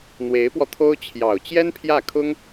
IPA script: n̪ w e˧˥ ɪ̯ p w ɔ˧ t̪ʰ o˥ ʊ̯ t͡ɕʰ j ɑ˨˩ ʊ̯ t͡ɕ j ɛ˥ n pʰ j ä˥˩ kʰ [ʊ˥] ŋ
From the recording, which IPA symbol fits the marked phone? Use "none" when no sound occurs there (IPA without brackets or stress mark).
ʊ˥